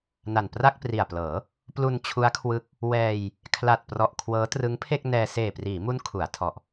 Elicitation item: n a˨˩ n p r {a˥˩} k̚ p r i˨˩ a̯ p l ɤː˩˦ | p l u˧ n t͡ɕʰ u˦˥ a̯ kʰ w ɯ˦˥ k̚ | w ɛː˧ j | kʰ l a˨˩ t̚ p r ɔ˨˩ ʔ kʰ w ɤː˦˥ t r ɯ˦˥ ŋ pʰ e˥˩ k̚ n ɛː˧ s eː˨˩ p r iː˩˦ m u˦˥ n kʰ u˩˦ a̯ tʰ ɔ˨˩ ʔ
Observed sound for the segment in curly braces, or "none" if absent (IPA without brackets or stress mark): a˥˩